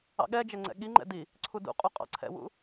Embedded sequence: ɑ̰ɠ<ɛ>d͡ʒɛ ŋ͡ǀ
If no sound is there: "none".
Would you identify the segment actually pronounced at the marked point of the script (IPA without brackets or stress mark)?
ɛ